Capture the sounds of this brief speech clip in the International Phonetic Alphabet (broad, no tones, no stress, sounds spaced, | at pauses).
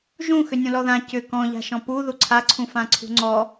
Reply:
ʒ ũ x ʏ nʲ ũ l ɔ ð ã c ʏ k ɔ̃ ʎ a̤ ʃ ɔ̃ p u ð u ǀʰ a ǀʰ ũ f ã ǀʰ ṳ ŋ͡ǀ ɔ